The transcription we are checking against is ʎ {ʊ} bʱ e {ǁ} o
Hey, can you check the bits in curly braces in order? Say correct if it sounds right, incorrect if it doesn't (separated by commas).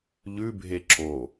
incorrect, correct